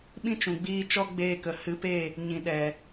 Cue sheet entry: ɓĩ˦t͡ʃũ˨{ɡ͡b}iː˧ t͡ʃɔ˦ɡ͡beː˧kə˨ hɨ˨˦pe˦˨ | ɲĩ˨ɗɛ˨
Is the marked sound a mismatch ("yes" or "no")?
no